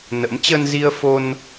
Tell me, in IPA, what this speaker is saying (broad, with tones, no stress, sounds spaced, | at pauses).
n ə̰˧˥ m t͡ɕ ə˧ n z i˧ ə̯ f o˧ n